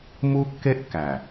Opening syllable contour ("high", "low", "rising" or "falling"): high